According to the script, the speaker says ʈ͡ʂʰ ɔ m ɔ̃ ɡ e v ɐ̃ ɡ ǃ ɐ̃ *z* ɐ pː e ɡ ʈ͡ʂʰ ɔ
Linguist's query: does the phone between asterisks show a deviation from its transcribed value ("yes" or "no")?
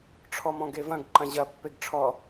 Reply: yes